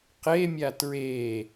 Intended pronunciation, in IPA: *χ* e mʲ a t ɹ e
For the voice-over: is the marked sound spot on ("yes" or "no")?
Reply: no